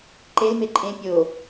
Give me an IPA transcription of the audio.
ǃ e l m e ǃʼ ẽ pʲ o

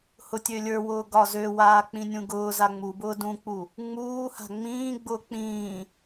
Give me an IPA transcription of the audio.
h ʊ tʲ ø lʲ ə˞ w ʊː ɡ ɒ z ø w aː k͡p ĩ nʲ ũ ɡ ʊː z a ŋ͡m u b ʊː d ũ k͡p u | ŋ͡m uː h a̤ ŋ͡m ĩː ɡ͡b ʊː k͡p ĩː

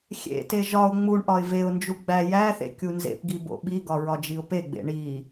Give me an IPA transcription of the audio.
xʲ ḛ t e ʒ ɒ ʊ̯ ŋ͡m u ɳ ʔ ɒ ɪ̯ v e ʊ̯ n d͡ʒ u ɡ͡b æ j æ θ ḛ kʲ u n z ḛ p ɡ i b o̰ ɓ i ɡ ɒ ɹ ɒ d͡ʒ i ʊ̯ p e ɡ͡b ḛ ɳ i

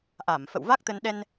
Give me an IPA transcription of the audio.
ʔ a˧˩ m f ə̰˧˨ w v a˦˥ k̚ t̪ ə˧ n ɗ ɛ˧ n

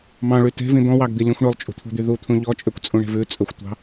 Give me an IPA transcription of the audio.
m ɑ̃ ɭ y t e̤ v ĩ d̪ ɔ̃ w ɑ ɡ d̪ i lʲ ũ xʷ ɳ ɵ lˠ t͡ʃʼ ṳ t̪ʰ ṳ d̪ y ð u t̪ʰ ũ ʎ ɔ t͡ʃʼ ø kʷ t͡sʼ ũ ɳ e̤ v ʉ t͡sʼ ɵ xʷ tʷ ɑ̤

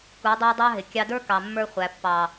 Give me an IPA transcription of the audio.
k u˨˦ dˤ æ˦ dˤ ɑ˦ ɦ ɪ˨ kʲ ɑ˧ d ə˞˦ k ɑ˨ mː ə˞˧ χʷ æ˨ pː ɑ˨

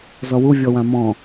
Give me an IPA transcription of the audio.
z ɔ w u vʲ ɔ w ã m ɔ̃

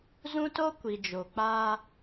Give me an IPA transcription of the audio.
z ũ˦ t o˦ kʷ i˨ d͡ʒ o˨ k͡p aː˦

